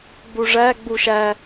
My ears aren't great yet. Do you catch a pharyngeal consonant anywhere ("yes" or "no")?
no